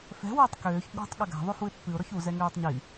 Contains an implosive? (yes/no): yes